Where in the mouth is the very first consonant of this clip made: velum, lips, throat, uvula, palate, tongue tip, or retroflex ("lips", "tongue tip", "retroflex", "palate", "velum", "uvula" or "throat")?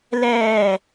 tongue tip